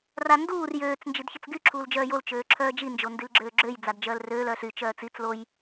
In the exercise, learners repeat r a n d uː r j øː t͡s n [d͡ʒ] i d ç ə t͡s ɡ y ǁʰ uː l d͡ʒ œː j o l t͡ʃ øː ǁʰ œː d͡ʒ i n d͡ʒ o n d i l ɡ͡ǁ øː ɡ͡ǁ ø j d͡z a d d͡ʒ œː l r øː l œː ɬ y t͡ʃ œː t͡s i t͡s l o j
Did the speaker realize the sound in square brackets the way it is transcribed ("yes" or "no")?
yes